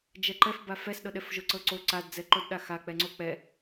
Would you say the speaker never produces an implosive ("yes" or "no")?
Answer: no